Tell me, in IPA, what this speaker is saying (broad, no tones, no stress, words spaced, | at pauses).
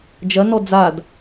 d͡ʒɐnɔ d͡zad